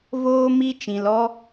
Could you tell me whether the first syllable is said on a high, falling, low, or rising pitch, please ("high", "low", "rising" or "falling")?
high